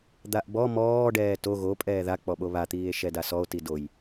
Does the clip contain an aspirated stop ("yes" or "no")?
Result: no